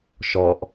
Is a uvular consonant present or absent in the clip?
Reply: absent